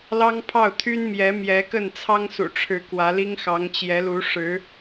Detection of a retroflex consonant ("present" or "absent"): present